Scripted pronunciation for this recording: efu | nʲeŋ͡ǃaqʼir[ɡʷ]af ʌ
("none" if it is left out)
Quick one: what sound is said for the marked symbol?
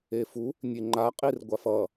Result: ɡʷ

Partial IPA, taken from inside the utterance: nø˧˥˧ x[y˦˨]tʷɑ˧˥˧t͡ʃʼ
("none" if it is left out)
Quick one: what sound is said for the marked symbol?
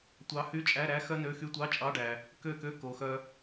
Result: y˧˥˧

